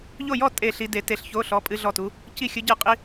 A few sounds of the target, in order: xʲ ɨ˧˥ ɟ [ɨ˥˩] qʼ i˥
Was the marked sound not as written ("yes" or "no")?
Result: no